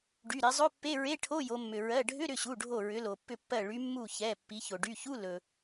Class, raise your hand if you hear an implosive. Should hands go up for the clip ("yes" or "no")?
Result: no